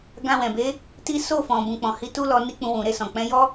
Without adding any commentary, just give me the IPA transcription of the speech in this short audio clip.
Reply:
ɡ ã˧ w ɛ̃˨ b e˨˦ | t i˦ s o˦˨ f ɔ̃˨ b ũ˨ k͡p ɔ̃˨ h i˧ t u˦ l ɔ˧ n i˦ k͡p ũ˧ w ũ˨ ɾ e˧ s ɔ̃˨ k͡p ɛ̃˨˦ j ɔ˦

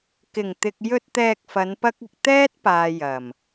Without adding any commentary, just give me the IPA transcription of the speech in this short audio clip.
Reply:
k ɪ˨˩ ŋ t̪ ɪ˨ k̚ j ɵ˧ t̚ t̪ ɛː˧ k̚ f ɐ˨˧ n p ɐ˥ k̚ ɪ˧ k̚ t̪ ɛː˥ t̚ p aː˨ j ɐ˨˩ m

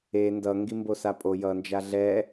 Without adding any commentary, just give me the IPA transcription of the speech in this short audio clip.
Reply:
e n d ʌ ŋ ɡ i m b o s a pʼ o j ʌ n d͡ʒ a ɮ ɛ

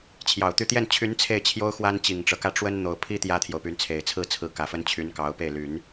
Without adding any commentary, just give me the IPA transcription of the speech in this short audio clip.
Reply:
t͡ɕʰ j ɑ˨˩ ʊ̯ t̪ y˥˧ t̪ j ɛ˥˩ n t͡ɕʰ y˧˥ n t͡sʰ e˥˩ ɪ̯ t͡ɕʰ j o˥ ʊ̯ x w a˥ n t͡ɕ i˨˩ ŋ ʈ͡ʂ ɤ˦ k ä˥˩ ʈ͡ʂ w ə˥ n n̪ o˨˩ ʊ̯ pʰ i˥ t̪ j ä˥ t̪ʰ j o˨ ʊ̯ p y˧˥ n t͡sʰ e˨˩ ɪ̯ t͡sʰ ɹ̩˥˩ t͡sʰ ɹ̩˧˥ k ä˨˩ f ə˥ n t͡ɕʰ y˧˥ n k ɑ˧˥ ʊ̯ p e˥˩ ɪ̯ l y˨˩˦ n

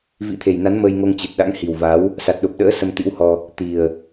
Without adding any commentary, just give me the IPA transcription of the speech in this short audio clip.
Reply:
v ḭ˧˥ t̪ʰ e˨˩ j n a˨˦ n m əː˧ j ŋ o˧ ŋ t͡ɕ ɨ˨˩ t̚ ɗ a̰˧˥ ŋ h i˨˩ w v a˨˦ w | s a˨˩ t̚ ɗ o˨˩ p̚ ɗ ə̰ː˧˥ s ə˧ m t̪ ḭ˧˥ w h ɔ˧ | t̪ i˨˩ ə̯

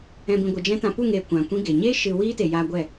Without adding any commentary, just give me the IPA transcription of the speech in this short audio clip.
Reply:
ɛ̃˨ b ĩ˨ ɡʷ ɨ˨ d͡ʒ ɛ̃˦ t ã˧ p u˦˨ ŋ eː˨ kʷ ã˨ kʷ ĩ˦ ɡ e˨ ɲ eː˦ ʃ ɨ˧ w iː˦ t e˨ j aː˧ ɡʷ ɛ˦˨

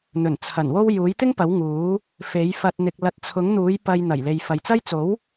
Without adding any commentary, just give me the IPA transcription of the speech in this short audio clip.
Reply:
n̪ ɵ˨˩ n t͡sʰ ɐ˨˩ n w o˧ w j uː˨˥ j t̪ ɪ˥ ŋ p ɐ˨˥ w ŋ uː˨˥ | f e˨˥ j f ɐ˧ t̚ n̪ ɪ˨ k̚ l ɐ˨˥ t̚ t͡sʰ ʊ˨˥ ŋ n̪ uː˨˥ j p ɐ˧ j n̪ ɐ˨˩ j l e˨ j f ɐ˨ j t͡s ɐ˥ j t͡s o˨˥ w

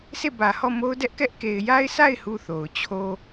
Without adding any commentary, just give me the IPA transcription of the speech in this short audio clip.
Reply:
sʰ e˦˨ b ä˨ h ɔ˦˨ m o˦ ʊ̯ d ɛ˦ ʔ k ɛ˦ ʔ k e˨ ɪ̯ j a˦ ɪ̯ sʰ a˦˨ ɪ̯ h u˦˨ θ o˨ ʊ̯ t͡ɕʰ o˦

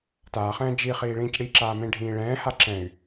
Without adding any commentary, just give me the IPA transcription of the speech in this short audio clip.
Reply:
t aː χ ɛ̃ː d͡ʒ i χ iː ɭ ĩː c ɽ i ǁ aː m ẽ ɖʱ ĩː ɭ ɛ̃ː h a ǁ ɛ̃ y̯

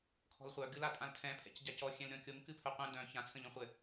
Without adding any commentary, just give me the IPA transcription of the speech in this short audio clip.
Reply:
kʰ ɔ̤ l χʷ œ ɡ ɨ l a tʼ ã l tʰ ɛ̃ pʰ ɛ̰ c ɟ a c ɔ xʲ ɛ̃ l ɾʲ ɔ̃ kʲ o ŋ k ɨ pʰ œ qʷ ɛ̃ d œ̃ ç ã t͡sʰ ə̃ ʎ œ̃ χʷ ɘ

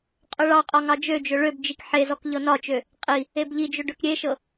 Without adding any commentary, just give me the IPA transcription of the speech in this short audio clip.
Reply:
qʼ ø ɭ ɑ qʼ ɒ ŋ ɑ d͡ʒ ø d͡ʒ ø ɭ ø b d͡ʒ i k ħ e z ɔ k ʎ ɤ n ɒ t͡ʃ ø | qʼ i | e b ʎ i d͡ʒ ø ɖ ø k ɾʲ e ʃ ɤ

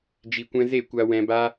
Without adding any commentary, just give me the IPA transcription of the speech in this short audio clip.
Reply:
d͡ʒ i˨ kʷ ɛ̃˧ z e˦˨ kʷ a˧ w ɛ̃˧ b a˦

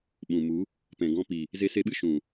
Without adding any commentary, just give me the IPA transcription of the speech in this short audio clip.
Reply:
ɓ ũ˨ m u˨˦ | p ɛ̃˨ ɡ ɔ̃˧ p i˨ | z e˧ s e˧ ɓ ɨ˦ ʃ ũ˨

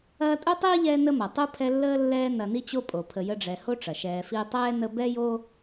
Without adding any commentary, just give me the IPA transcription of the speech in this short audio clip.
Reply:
ɐː˥ tʼ u˥ tˤ iː˥ ʎ ɛː˦ n ə˦ m ɐ˩ tˤ u˥ pʰ ɛ˦ lː əː˥ lː ɛː˦ n ɐ˨ n i˦ t͡ɕ o˦ pʼ o˩ pʰ ə˨ j ə˦ ɖ͡ʐ ɛ˨ h o˥ ʈ͡ʂ ɐ˩ ʃ ɛː˨ f iː˦ tˤ ɛː˥ n ə˦ b ɛ˥ j o˥

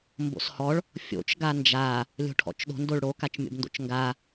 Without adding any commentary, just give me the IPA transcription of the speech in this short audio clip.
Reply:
m b o̰ s h ɔ ɭ | fʲ o̰ t͡ʃ ɡ a n d͡ʒ a | lʲ o̤ ʈʰ ɔ̰ t͡ʃ ɗ o̤ n d o ɭ ɽ o k a t͡ʃ mʲ o̰ b n d o̰ t͡ʃ ŋ ɡ a

